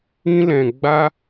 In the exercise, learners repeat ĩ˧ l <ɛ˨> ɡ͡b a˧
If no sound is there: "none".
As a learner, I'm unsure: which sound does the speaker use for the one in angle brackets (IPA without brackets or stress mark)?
ɛ̃˨